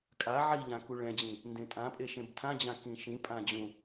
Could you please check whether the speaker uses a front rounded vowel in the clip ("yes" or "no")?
no